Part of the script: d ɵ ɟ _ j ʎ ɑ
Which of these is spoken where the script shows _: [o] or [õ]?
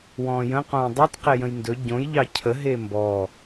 õ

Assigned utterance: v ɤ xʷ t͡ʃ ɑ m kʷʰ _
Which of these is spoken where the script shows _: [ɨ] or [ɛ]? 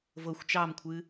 ɨ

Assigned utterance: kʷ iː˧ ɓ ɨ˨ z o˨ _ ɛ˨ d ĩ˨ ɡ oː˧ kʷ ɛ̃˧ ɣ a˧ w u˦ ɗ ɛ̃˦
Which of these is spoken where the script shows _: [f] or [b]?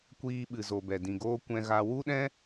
b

